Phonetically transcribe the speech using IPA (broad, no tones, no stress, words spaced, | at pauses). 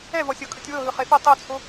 ɛvɔsʲɤ kʼɯtʲwɤɦɯ χefo tˤot͡sʰo